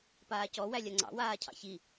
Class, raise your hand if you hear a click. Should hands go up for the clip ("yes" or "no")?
yes